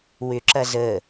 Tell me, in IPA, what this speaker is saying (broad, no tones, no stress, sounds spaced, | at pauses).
w ʏ ǁ ɐ z əː